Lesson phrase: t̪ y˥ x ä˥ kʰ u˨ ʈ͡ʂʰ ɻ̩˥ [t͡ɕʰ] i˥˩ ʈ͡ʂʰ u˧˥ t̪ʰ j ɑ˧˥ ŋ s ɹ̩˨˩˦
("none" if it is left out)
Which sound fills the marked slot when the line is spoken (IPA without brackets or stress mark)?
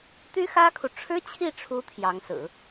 t͡ɕʰ